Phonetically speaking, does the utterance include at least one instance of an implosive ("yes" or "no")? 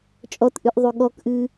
yes